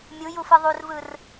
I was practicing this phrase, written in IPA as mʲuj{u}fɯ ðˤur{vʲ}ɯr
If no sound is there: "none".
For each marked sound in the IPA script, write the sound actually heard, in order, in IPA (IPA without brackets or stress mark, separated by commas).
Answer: u, v